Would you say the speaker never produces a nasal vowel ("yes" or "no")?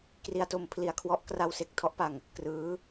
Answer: yes